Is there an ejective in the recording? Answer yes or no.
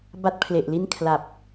no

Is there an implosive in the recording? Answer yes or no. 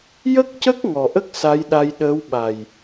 yes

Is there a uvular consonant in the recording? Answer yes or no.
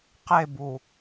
yes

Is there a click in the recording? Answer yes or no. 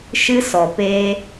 no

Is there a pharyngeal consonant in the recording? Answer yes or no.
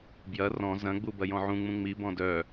yes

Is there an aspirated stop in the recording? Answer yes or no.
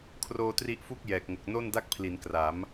yes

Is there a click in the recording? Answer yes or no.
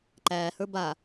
yes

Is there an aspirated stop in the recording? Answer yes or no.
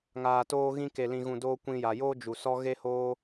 no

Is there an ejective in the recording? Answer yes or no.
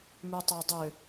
no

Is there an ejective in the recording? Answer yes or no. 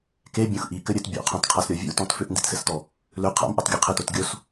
no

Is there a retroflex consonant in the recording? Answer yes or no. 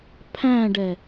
yes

